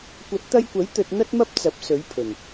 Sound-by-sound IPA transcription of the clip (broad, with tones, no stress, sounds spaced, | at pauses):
kʷ ɐ˨˥ t̚ t̪ ɐ˧ j kʷ ɐ˨˥ j t̪ ɵ˧ t̚ n̪ ɐ˥ t̚ m ɐ˥ p̚ t͡s ɐ˨˥ p̚ s ɵ˨˥ ɥ pʰ ɵ˨˩ n